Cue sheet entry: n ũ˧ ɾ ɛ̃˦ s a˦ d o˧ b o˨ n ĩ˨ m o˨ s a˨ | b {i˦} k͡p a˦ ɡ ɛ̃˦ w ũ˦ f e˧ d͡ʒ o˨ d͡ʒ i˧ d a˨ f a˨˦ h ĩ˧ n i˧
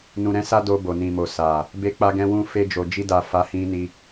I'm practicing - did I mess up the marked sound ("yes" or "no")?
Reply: yes